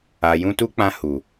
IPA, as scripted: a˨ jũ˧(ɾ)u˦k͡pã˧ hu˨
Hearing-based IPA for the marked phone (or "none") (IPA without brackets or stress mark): t